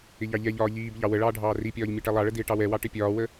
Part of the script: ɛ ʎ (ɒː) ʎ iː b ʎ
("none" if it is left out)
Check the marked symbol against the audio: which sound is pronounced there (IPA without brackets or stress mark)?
ɒː